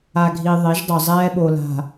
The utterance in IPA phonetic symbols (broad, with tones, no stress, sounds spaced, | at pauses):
a˨ ɡʱ i˨ ðˤ e˨˦ ʒ dˤ o˨ zˤ ɛː˦ ɓ o˨ l a̤˨